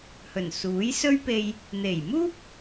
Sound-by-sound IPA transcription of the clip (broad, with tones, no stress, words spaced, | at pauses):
hɵ˨˩nsuː˨˥jsɵ˥ɥpe˧j | n̪e˨˩j muː˥p̚